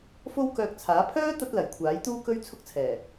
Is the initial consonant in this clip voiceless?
yes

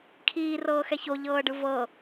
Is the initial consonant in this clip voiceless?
yes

